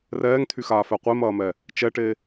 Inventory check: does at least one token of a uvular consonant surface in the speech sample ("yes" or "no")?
yes